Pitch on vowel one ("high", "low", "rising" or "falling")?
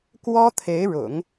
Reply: high